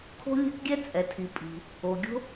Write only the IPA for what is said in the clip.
kʰo̤˥lʲɛ̤˥kɡʲɛ˥ t͡sʼɛ˩tʰi˩ pʼi̤˩ | o˩ɡʲo̤˥

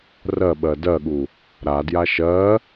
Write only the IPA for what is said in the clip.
rɜɓɜ dɜɠu | ɾadja ʃɜ

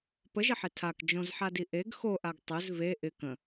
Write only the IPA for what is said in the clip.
pəʒɪħe tʰak d͡ʒõzħadi ʔeɡ xoʔaɡ tˤɵz ve ʔɪ kə̃

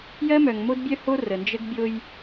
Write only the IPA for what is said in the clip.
jɜ˦mœ˨ŋ mo˦dbʲœ˦ho˦ rə˨ nd͡ʒə˦ɡbʲo˦j

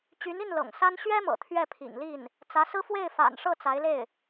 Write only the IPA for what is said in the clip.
t͡ɕy˧˥ni˥˩n lɤ̰˨˩ŋsa˥n ɕɥɛ˥mɤ̰˨˩ t̪ʰɥɛ˥˩pʰḭ˨˩ŋli˥˩n | t͡sä˧˥sɹ̩˥ fwe˥˩ɪ̯ fa̰˨˩nʂɤ˥˩ t͡sa˧˥ɪ̯le˥˩ɪ̯

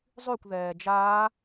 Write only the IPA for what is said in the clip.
zˤykʷðɛː d͡ʒaː

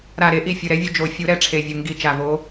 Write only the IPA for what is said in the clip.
ɾa˨˩ɾe˨˩˦ʔi˨˩ fʲɯ˨˩ɾɛ˨˦vʲu˨˦ d͡ʒo˨˩˦ fʲu˨˩˦ɾɛ˨˦ ʈ͡ʂʰe˨˩vʲɯ˨˩ ŋɡi˨˩˦t͡ʃa˨˩vo˨˦

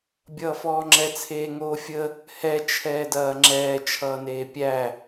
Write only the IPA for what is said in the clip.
bʲʌːfɔːŋ͡ǁɛ t͡sʰeːŋoːfʲə | hɛ t͡ʃʰɛːdɐːŋ͡ǁɛː t͡ʃʰʌːneːpʲæ

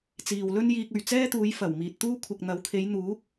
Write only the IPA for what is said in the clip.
t͡siː˨wlɵ˥n jiː˧k̚ɵ˨ɥ t͡sɛː˥t̪uː˨˧j fɐ˨˩w miː˨t̚t̪uː˥ kʷʰɪ˨k̚n̪ɐ˨˥wkʰe˨˧j n̪uː˨˥k̚

